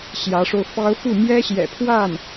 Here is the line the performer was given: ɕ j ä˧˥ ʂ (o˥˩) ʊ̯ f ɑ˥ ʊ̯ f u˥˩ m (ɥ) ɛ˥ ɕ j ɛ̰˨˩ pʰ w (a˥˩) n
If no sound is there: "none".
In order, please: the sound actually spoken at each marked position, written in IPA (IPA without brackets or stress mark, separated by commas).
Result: o˧, j, a˥˩